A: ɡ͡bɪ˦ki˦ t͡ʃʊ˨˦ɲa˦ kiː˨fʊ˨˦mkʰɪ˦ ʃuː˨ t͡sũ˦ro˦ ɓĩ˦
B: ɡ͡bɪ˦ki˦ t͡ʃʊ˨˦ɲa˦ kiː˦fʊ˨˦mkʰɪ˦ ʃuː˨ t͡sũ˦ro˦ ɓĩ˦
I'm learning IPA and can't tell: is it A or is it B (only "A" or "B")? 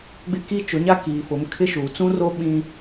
A